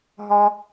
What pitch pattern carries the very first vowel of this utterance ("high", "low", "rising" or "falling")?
high